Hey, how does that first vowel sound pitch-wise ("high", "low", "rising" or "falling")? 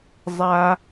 high